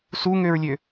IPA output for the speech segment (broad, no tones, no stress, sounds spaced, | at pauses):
s u ŋ ø ɹ lʲ ø